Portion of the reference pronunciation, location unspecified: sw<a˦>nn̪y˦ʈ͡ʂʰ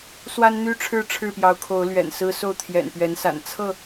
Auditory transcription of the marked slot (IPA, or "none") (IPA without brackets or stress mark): a˦